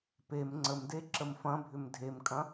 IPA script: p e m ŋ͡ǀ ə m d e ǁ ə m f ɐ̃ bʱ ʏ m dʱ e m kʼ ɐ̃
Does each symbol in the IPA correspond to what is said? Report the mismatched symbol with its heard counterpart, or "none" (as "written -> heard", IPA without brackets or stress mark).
none